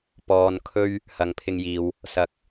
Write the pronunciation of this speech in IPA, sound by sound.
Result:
p ɔː˨ n kʰ ɵ˧ ɥ | h ɐ˨ ŋ pʰ ɪ˧ ŋ j iː˨ w | s ɐ˧ k̚

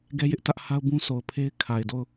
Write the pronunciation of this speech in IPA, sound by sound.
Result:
ɡ ɛ˦ j ɪ˦ ʔ t ä˦ ʔ h a˦ ʊ̯ b ũ˦ sʰ o˨ ʊ̯ pʰ e˦ ɪ̯ kʰ a˨ ɪ̯ d o˦˨ ʊ̯

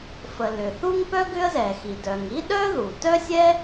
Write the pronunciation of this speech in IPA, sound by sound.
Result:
f ə˩ l ʏ˩ θ u˥ ŋ p œ˥ ɡ ʏ˥ ə̯ z ɛ˩ x i˩ d œ˩ ŋ i˥ ɗ œ˥ ð u˩ t œ˥ sʲ ɛ˥

